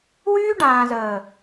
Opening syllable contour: high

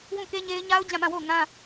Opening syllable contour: falling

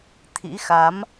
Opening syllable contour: rising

